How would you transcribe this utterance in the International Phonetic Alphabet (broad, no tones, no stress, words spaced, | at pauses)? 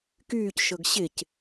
kyːcʃɤɡ ɕɪc